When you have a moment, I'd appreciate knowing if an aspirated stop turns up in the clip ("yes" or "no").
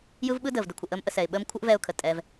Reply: yes